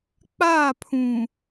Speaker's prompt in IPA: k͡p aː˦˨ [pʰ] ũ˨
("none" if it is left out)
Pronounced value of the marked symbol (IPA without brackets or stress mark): pʰ